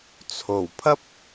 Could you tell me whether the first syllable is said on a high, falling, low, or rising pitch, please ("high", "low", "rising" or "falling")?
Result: low